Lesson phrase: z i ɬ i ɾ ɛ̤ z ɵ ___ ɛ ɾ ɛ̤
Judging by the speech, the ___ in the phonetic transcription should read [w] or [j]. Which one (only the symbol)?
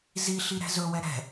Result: w